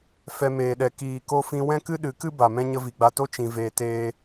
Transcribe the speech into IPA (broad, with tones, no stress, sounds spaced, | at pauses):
f ɛ˧ m eː˨ ɗ ɛ˨ k iː˨ k o˧ f ĩ˧ w ɛ̃˦ k ɨ˦ ɗ ɨ˨˦ k ɨ˦ b a˨ m ɛ̃˦ ɲ ə˧ v i˨ ɡ͡b a˧ t o˦ t͡ʃ ĩ˧ v eː˧ t eː˦